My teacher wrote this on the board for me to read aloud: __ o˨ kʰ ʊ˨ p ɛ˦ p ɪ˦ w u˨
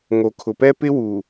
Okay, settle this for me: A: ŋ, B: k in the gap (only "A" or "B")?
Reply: A